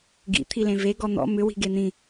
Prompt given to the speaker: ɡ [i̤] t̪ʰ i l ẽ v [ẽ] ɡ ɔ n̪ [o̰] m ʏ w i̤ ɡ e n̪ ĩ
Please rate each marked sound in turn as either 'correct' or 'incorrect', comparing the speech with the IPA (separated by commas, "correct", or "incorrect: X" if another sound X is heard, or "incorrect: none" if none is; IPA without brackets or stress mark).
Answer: incorrect: ḭ, incorrect: e, incorrect: ɔ̰